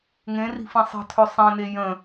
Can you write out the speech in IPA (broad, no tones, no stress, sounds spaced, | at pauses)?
ŋ ẽ r i̤ f ĩ sˤ ə̤ tʰ ø sˤ ẽ n e j ə̃